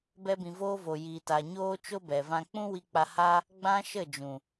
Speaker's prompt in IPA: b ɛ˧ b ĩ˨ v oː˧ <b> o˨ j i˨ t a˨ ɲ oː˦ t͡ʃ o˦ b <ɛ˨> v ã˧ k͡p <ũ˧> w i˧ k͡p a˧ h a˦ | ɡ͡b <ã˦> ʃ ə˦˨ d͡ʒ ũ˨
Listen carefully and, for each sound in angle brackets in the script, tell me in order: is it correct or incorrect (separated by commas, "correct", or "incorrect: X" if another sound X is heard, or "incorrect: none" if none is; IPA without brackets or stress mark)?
incorrect: v, correct, incorrect: ũ˦, correct